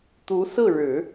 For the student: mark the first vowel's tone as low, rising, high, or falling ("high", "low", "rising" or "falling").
rising